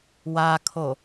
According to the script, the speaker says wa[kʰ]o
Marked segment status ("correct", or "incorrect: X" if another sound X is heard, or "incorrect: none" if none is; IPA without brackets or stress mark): correct